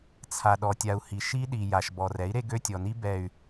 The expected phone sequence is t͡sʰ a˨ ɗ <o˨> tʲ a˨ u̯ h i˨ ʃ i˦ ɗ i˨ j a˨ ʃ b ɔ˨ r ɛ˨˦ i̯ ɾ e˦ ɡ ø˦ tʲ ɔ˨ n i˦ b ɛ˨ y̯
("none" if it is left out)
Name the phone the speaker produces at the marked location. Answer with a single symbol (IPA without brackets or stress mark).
ɔ˨